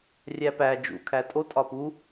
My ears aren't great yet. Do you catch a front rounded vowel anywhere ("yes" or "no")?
no